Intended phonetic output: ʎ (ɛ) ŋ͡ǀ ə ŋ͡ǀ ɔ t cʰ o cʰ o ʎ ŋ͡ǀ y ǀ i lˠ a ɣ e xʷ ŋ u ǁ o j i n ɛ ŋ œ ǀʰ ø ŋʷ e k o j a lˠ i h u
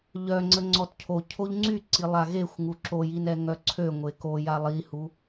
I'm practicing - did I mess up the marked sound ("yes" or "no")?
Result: yes